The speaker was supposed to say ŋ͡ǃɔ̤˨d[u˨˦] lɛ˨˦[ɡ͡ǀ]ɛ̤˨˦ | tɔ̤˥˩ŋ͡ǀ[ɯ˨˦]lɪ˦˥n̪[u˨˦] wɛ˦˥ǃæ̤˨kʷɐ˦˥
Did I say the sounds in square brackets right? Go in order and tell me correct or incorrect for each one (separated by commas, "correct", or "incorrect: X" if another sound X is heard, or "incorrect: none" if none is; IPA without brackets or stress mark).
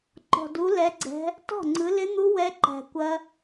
correct, correct, correct, incorrect: u˦˥